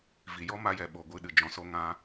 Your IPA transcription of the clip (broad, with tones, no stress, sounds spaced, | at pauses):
v i˨ j ɔ˦ m a˧ j ɛ˨ ɓ o˧ ɡʷ ɨ˧ ɗ ɨ˨ d͡ʒ ɔ̃˧ s o˦ ŋ ã˦